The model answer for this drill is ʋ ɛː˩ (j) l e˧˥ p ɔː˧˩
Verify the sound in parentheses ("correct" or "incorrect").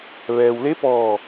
incorrect